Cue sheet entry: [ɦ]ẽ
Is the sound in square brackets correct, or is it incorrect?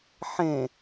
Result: incorrect: ħ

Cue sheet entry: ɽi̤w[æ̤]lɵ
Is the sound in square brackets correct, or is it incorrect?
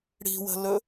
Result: incorrect: ə̤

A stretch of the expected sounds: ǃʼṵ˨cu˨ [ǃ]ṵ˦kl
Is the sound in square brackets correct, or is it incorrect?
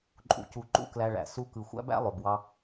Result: correct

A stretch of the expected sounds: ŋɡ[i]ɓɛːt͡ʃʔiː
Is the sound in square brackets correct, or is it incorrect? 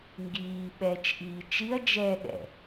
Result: incorrect: iː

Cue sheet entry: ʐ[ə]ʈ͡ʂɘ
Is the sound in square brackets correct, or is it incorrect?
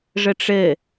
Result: correct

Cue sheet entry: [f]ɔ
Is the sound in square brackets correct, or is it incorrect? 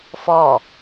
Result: correct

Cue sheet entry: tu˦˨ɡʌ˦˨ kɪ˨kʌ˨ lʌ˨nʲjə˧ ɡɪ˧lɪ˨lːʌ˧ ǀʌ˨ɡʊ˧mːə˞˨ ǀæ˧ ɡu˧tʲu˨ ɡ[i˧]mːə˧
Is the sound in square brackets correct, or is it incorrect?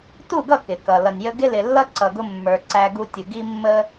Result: correct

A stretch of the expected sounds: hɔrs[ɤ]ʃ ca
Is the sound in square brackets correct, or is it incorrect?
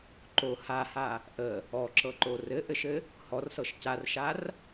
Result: correct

